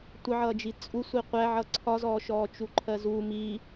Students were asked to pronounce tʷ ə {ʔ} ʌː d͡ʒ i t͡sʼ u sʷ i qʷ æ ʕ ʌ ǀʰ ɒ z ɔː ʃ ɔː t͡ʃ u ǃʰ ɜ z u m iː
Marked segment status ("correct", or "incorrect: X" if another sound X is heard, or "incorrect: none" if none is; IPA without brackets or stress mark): incorrect: ʕ